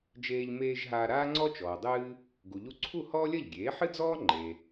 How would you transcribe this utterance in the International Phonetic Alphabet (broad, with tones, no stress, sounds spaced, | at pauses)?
d͡ʒ eː˧ ʎ m eː˧ ʒ ɦ aː˧ ɾ aː˥ ŋ͡ǀ ɔ˥ t͡ʃ ɔː˩ dˤ ɨː˧ | ɡ u˩ ʎ u˧ ǀʰ u˥˩ h ɔː˥ lʲ ɐ˥˩ ʎ ɡʲ eː˩˥ ħ ɨ˥ d͡z ɔː˥ ŋ͡ǃ e˩